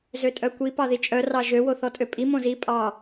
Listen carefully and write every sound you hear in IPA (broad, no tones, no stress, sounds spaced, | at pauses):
z ø tʼ œ kʷ i p ɑ ð i t͡ʃʼ œ r ɑ ʒ ø w o θ ɔ tʼ ø pʼ i m õ z i pʼ ɑ